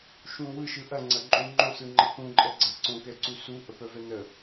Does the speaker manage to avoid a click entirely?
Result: no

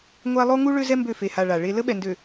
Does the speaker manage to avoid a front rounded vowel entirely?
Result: no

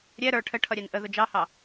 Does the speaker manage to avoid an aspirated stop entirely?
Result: no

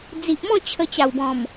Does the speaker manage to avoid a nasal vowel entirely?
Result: no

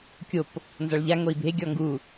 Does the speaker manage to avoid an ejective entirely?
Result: yes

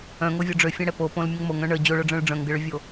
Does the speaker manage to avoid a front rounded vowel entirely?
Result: no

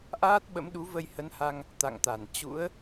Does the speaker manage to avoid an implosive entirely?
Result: no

